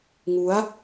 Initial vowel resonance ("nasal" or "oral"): oral